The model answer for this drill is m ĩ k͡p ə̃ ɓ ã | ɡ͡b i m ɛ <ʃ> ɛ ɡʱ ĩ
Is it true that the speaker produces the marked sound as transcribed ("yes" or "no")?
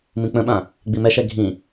yes